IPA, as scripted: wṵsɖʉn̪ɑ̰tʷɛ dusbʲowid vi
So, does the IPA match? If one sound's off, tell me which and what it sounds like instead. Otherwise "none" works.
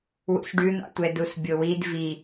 none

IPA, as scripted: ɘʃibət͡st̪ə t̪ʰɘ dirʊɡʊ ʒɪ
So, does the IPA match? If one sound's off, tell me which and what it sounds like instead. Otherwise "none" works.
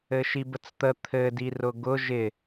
none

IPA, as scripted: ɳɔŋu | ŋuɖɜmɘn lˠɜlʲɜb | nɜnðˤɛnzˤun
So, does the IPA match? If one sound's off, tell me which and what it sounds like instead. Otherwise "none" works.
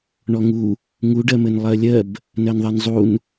none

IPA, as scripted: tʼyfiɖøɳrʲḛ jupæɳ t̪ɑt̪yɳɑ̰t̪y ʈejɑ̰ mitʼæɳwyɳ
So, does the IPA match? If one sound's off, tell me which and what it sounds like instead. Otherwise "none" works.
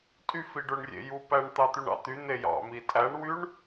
ʈ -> n̪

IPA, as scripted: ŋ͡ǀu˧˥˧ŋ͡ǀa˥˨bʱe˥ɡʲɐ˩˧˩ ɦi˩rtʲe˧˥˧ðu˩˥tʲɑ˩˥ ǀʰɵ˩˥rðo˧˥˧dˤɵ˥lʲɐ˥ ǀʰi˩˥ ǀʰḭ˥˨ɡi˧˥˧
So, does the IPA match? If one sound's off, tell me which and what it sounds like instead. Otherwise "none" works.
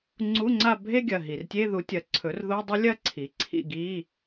ɑ˩˥ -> ɐ˩˥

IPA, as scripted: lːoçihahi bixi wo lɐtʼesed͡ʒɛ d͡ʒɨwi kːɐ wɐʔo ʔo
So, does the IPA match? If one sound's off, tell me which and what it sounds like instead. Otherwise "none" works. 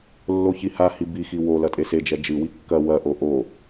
none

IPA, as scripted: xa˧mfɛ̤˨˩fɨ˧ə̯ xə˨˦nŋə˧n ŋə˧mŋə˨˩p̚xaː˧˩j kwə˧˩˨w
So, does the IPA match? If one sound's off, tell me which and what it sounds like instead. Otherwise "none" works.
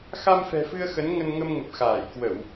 none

